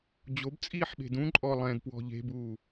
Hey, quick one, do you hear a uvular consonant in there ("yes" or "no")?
no